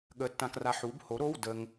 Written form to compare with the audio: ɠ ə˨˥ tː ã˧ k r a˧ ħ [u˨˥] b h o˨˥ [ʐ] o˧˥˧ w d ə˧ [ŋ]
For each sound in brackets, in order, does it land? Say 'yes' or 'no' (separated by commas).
yes, no, yes